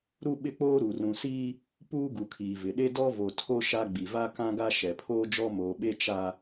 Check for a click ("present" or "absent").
absent